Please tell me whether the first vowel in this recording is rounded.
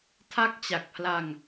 no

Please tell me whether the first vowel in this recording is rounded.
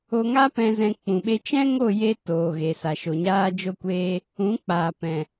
yes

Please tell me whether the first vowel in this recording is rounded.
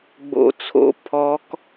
yes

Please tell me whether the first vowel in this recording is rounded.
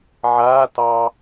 no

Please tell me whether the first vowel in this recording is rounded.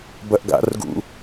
no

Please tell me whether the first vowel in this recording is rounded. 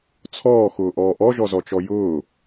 yes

